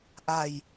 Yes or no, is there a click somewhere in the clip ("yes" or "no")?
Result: no